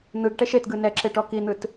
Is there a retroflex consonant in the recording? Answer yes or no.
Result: yes